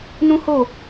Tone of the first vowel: high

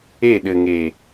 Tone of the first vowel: falling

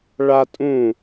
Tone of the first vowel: high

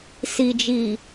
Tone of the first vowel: low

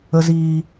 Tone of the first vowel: low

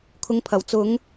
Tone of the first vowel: low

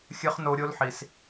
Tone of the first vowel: high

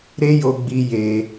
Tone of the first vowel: high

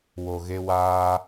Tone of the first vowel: low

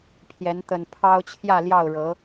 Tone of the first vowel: rising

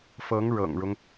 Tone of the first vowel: rising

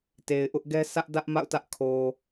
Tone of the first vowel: low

